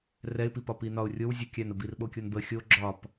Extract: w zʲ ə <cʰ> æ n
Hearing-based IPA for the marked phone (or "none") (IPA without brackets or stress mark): kʲ